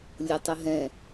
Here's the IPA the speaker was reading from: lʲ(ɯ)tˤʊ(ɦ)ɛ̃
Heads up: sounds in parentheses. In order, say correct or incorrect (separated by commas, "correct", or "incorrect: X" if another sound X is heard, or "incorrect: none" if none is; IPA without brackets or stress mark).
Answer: incorrect: ʊ, correct